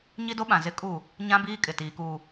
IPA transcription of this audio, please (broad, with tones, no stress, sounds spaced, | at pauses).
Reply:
ɲ i˦ d o˦ ɓ ã˨ z ɪ˦ kʼ u˦˨ | ɲ ã˦ b iː˦ kʼ ɪ˨ t iː˨ k uː˨